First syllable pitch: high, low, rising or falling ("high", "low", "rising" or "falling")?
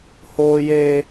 high